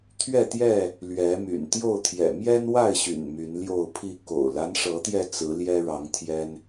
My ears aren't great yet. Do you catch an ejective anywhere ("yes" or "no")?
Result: no